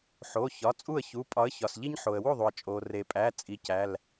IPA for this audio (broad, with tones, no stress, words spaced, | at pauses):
ħo˩˧˩çɒ˩˧˩ t͡sʼu˥˩ə̯çu˩˧˩pʼɒ˨˥ə̯ çɒ˩sʎi˦ɲ ħo˩ə̯wu˥˩ðˤu˩ə̯ t͡ʃʼo˩re˩pʼæ˩˧˩ t͡sʼi˨˥cæ˩˧˩l